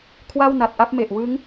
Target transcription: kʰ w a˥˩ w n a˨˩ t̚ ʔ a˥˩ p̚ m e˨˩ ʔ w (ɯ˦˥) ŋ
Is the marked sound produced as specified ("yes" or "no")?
yes